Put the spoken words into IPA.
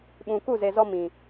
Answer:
ɓ ũ˨ k u˦˨ z e˨ z ɔ˦ m ĩ˨

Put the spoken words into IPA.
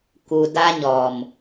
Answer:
k u˨ d a˧ ɲ ɔ˨ m

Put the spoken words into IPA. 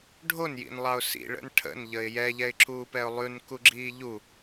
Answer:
ɖʱ o n j ḭ n lˠ ɑ ʊ̯ s ḭ ɭ ə̰ n ʈʰ ə̰ n ʎ ə ɪ̯ j ɛ ʎ ɛ ɪ̯ ǁʰ uː p ɛ ʊ̯ lˠ ʉ n k u ɡ͡ǁ iː ʎ u

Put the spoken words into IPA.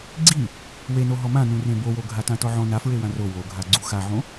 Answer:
ɡ͡ǀ i | w e n o ɦ ɔ m ã n ũ r ẽ b o w o ɡʱ a t ã t ɔ ʕ ɔ̃ n a f ɹ e w ã r o w o ɡʱ a ɡ͡ǀ u x a ʕ õ

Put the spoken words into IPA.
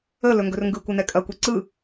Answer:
ə l ɵ ŋ ɡ ɵ r ŋ ɡ ɯ kʷ ɘ n ɛ kʼ ɐ kʷ ɛ ǀ ɯ

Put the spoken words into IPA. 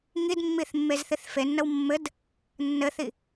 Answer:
ŋ i d mː i θ mː e z θ i θ f e nː ə w mː ɘ d | nː ɘ θ i

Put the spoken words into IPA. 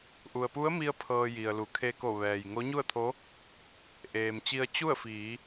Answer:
ʔ u˩ ə̯ p u˧˥ ə̯ m i˧ ə̯ pʰ ɤː˧ j i˩ ə̯ l u˩˧ kʰ e˧ k o˧˩ ʋ ɛː˩ j ŋ o˧˥ ɲ u˥˨ ə̯ t̪ʰ o˧˥ | ʔ eː˩ m t͡ɕ i˧ ə̯ t͡ɕ u˥˨ ə̯ f iː˩˧

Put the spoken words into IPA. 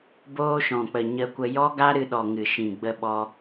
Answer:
b oː˧ ʃ ɔ̃˨ k͡p ə˨ ɲ ə˧ kʷ ə˧ j ɔ˦ ɡ a˦ ɾ ɨ˧ ɗ ɔ˨ ŋ ɨ˨ ʃ ĩ˨ ɡ͡b ə˧ ɓ ɔ˧

